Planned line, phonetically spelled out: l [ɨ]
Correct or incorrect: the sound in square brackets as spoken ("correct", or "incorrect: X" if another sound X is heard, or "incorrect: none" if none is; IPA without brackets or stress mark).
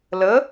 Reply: incorrect: ə